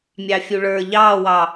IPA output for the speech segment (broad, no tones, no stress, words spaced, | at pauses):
mʲɑfʲuɭə˞ ʎɑːwɑ